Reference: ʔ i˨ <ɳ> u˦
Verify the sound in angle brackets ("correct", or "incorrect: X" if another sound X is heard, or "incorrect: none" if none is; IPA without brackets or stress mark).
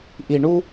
correct